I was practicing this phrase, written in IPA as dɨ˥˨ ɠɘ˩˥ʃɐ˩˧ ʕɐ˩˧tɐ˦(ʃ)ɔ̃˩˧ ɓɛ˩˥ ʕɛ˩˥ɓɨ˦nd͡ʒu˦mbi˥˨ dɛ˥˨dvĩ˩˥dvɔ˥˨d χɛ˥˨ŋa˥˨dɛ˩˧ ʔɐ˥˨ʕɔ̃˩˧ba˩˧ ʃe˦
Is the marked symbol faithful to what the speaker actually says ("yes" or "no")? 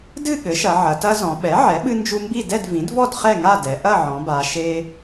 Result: no